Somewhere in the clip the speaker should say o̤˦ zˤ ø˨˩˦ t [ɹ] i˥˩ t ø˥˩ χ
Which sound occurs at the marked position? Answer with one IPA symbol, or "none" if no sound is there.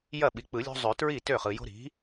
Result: ɹ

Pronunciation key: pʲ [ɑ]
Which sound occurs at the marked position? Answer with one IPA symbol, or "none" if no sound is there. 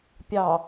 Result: ɑ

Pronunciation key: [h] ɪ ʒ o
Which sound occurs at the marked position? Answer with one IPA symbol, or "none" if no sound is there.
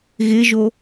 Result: ɣ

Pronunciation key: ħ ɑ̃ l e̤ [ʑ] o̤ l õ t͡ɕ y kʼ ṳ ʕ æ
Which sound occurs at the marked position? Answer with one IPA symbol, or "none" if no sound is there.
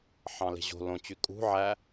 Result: ʑ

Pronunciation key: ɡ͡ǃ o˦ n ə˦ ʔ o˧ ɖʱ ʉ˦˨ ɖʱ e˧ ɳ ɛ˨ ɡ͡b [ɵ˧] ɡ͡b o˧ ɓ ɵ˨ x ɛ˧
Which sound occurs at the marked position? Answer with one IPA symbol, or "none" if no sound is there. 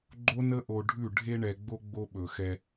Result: o˧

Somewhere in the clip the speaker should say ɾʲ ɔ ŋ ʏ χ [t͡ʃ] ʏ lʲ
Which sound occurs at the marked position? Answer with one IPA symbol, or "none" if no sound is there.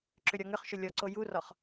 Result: ʃ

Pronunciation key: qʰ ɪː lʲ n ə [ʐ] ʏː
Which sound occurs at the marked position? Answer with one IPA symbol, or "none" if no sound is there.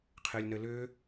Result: l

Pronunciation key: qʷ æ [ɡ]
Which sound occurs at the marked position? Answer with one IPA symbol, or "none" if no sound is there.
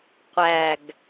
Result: ɡ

